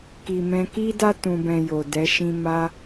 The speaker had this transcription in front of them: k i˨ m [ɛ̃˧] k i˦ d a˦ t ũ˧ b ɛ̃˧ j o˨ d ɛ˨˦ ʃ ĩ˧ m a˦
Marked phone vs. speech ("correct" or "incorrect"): correct